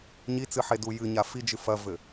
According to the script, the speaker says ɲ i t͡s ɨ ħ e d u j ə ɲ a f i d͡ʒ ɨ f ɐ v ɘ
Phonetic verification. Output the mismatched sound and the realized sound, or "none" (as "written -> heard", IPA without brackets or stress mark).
ə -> ɨ